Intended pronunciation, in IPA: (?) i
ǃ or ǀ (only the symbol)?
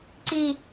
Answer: ǀ